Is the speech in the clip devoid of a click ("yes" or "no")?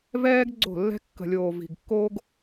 no